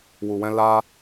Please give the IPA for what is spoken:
w u˨ w ɛ̃˧ l a˧

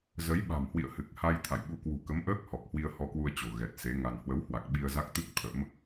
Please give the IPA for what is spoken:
z ə˨˦ j ɓ a̤˨˩ m h w ḭ˧˨ ə̯ h ɨ˨˩ k̚ h a˧ j t̪ʰ a̰˧˨ j ɓ u˧ k w ṳ˨˩ k ə˨˦ m ʔ əː˦˥ k̚ h ɔ˨˩ k̚ h w i˧ ə̯ h ɔ˧ k w u˧ ə̯ t͡ɕ o̤˨˩ ɣ ɛ˨˩ t̚ s e˨˦ ŋ a˧ n h w ə˨˦ w h w a˨˩ k̚ ɓ i˧ ə̯ z a˦˥ k̚ t̪ ɨ˦˥ k̚ t̪ʰ ə̰˧˥ m

